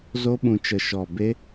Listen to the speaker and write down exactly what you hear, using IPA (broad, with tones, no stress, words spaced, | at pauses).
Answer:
zo˦ɓũ˧t͡ʃə˧ ʃɔ˦˨ be˦